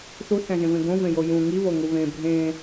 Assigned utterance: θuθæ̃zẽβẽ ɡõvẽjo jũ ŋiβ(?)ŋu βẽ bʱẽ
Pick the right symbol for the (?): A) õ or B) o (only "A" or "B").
B